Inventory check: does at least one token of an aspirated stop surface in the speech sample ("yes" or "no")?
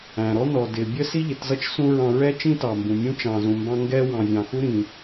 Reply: no